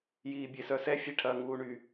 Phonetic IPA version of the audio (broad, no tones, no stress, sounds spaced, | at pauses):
j iː bʲ e s œ s ɛ fʲ e ʈʰ ɐ ŋ uː ɳ y